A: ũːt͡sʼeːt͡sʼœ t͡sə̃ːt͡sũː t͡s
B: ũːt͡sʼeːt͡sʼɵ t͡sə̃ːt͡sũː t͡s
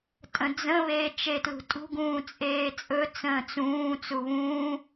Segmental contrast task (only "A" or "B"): B